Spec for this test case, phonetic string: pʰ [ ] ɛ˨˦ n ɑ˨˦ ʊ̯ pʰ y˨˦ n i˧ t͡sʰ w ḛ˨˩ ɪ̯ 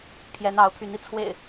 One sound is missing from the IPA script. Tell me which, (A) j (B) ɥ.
A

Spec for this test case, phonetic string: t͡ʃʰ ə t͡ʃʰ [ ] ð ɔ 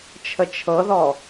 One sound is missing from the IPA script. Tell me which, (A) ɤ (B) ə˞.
A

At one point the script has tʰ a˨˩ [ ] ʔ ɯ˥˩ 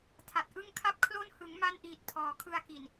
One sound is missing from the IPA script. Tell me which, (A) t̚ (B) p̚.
A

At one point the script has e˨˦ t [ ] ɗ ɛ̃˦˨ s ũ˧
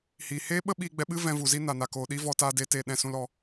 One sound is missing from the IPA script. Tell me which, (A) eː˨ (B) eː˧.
A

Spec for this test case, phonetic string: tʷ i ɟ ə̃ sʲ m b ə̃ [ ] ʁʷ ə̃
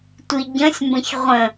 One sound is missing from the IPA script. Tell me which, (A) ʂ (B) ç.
B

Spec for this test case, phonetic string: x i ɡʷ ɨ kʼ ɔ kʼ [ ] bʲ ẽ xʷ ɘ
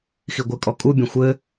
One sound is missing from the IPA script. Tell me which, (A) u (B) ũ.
A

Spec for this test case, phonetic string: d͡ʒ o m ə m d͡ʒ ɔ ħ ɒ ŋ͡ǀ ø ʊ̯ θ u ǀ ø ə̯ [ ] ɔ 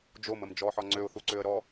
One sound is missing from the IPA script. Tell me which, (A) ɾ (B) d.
A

